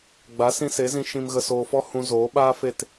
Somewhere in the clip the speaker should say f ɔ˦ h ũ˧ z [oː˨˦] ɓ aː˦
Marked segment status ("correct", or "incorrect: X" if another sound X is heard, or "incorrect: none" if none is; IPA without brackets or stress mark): correct